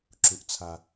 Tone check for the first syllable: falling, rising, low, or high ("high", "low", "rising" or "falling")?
low